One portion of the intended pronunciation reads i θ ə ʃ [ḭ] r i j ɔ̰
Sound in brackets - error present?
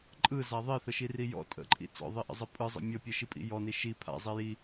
yes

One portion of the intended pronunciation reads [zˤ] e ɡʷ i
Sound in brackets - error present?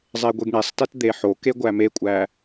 no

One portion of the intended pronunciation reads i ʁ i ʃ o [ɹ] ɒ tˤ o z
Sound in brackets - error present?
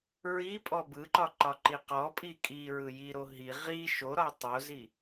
yes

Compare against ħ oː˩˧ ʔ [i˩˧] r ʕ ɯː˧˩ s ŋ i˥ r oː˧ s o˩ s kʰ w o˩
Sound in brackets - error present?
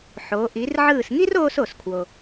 no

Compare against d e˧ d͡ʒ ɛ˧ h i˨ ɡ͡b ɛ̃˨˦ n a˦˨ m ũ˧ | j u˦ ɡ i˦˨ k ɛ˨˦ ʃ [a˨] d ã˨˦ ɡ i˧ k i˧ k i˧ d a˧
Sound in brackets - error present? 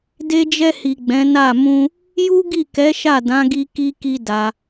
yes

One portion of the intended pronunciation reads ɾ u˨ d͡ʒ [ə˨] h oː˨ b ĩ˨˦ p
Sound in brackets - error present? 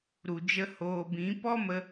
yes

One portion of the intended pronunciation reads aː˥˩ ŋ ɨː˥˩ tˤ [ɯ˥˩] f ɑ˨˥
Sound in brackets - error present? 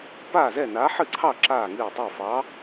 yes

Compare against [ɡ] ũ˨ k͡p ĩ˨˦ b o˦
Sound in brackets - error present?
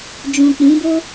yes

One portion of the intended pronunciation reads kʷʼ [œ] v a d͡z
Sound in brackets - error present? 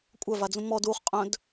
no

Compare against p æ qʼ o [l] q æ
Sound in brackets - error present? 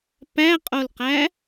no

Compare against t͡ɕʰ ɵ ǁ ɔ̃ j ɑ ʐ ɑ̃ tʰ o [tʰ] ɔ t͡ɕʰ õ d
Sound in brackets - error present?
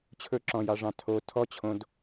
no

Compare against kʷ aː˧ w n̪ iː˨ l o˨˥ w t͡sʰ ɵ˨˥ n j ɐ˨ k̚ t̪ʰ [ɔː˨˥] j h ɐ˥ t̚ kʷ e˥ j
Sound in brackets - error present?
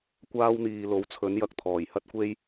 yes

